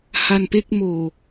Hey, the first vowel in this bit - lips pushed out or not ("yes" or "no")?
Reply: no